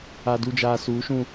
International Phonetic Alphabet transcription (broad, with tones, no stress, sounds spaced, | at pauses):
a˨ d u˨ d͡ʒ aː˨ s uː˨˦ ʃ ũ˦